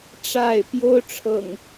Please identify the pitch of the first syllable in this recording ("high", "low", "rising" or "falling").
falling